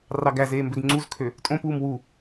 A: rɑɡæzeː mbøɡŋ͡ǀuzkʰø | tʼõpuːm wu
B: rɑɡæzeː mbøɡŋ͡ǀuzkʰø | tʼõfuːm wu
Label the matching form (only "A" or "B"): A